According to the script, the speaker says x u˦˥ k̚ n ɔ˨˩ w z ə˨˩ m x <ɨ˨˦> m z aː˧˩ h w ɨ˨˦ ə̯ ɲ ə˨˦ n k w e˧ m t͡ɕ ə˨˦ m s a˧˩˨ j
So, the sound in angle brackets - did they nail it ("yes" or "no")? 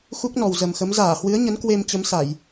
no